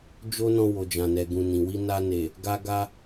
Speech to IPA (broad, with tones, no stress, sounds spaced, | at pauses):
d͡ʒ o˦ n ɔ̃˧ w o˨ d͡ʒ ã˨ n ɛ˨ ɡ ũ˨ n ĩ˨ w i˧ n a˧ n e˨ | ɡ a˧ ɡ a˧